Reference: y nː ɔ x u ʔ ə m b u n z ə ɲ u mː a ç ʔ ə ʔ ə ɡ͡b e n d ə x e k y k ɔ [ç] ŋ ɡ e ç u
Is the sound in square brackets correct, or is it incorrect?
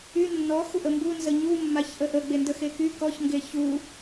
correct